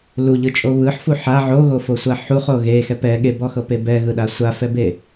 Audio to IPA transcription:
l u ʎ ɯ t͡ʃʼ o β ɯ ħ f u ħ a ʕ o ɣ o f o sʷ a ħ u χ o ɣ e x ɛ p ɛ ɠ e b ɔ x ɤ p e b ɛ ɣ ɯ ɗ a sʷ a f ɛ b e

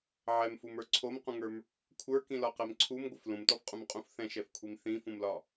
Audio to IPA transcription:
ʕ ɛ m f u m ə˞ ǀʰ o m q ũ ŋ ə˞ m | kʷʰ ə˞ k ĩ l ɒ q ɛ m ǀʰ u m ɡʷ ə f l ũ m t ɔ f qʼ ũ m qʼ ũ f θ ɛ̃ ʃ ɛ f kʷʰ i m θ ĩ f ũ m l ɒ

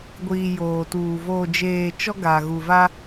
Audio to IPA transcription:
ɡʷ iː˨ j oː˨ t uː˨ v oː˨ d͡ʒ eː˨ t͡ʃ ɔ˦ ɡ a˨ ɣ u˨ v a˦

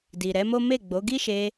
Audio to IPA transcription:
d i˨ ɾ ɛ˨˦ m o˦ m e˦˨ ɡ͡b o˨˦ ɡ i˦ ʃ e˧

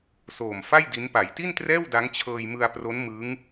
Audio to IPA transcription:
s oː˨˩ m f a˥˩ j d i˦˥ n p a˩˦ j t i˥˩ n t r ɛː˥˩ w d a˦˥ ŋ t͡ɕʰ ɤː˧ j m ɯ˧ a̯ p r o˦˥ n m ɯ˦˥ ŋ

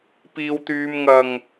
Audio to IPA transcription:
p iː˧ w t̪ yː˧ m ŋ ɐ˨ ŋ

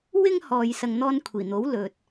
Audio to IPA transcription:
w ɪ˥ ŋ h ɔː˨ j s ɐ˧ ŋ n̪ ɔː˥ n kʷʰ iː˨˩ n̪ o˨˥ w l ɵ˨ t̚

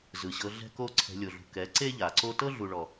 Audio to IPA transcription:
z ɯ˨ ɕ ɤ˧ ɮ ɛ̤˦ k o˦ ǀʰ ɛ̤˧ lʲ o˨ ɮ ṳ˨ k ɛ˨˦ ǀ e˦ ʎ a˨ ǀ o˦ t ɤ˦ ɮ u˨ ɭ ɔ˨

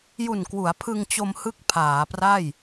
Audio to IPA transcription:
j u˨˩ n k w u˩˦ a̯ pʰ ɯ˧ ŋ t͡ɕ o˧ m h ɯ˦˥ k̚ pʰ aː˩˦ p r a˥˩ j

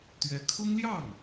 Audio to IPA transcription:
t̪ ɥ ɛ˧˥ kʰ ʊ˥ ŋ l j ɑ˥˩ ŋ

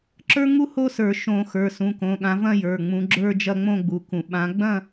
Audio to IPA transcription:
ǁ ə˞˥ ŋ u˥ h o˥ s ə˞˧˩˧ ʃ õ˧˩˧ x ə˞˩˧˩ s ũ˩˧˩ k õ˩˧˩ ɠ ã˨˦ v ɐ̃˥˧ j ə˞˩˧˩ ŋ͡m ũ˨˦ ɡ͡ǁ ə˞˥˧ d͡ʒ ɐ˥˧ ŋ͡m õ˥˧ ɡ͡b u˨˦ k ũ˧˩˧ ɓ ã˨˦ ɡ͡b ɐ̃˥˧

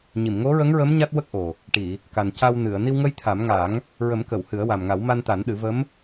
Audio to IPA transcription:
ɲ i˨˩˨ m ŋ o˧˥ ɹ ə˧˥ ŋ ɹ ə˧˥ m ɲ a˦˥ t̚ w ə˦˥ k̚ ʔ o˨˩ | ʈ i˨˩˨ | k a˨˩ n c a˧ w n ɨ˨˩˨ ə̯ n i˧ w ŋ ə˧ j t̪ʰ a˨˩˦ m ŋ a˨˩˦ ŋ | ɹ ə˨˩˦ m k ə˨˩˨ w h ɨ˨˩˦ ə̯ w a˨˩ m ŋ a˨˩˦ w m a˧ n t̪ a˨˩˦ n ɗ ɨ˨˩˦ v ə˧˥ m

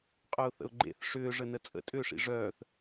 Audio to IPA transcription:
qʼ œ ʊ̯ θ ə̰ ʊ̯ ɡ͡ǃ ḛ θ ʂ ʏː ʐ ə n ə t͡sʼ ə̰ tʼ ʏː ʂ ḭ ʐ œː θ

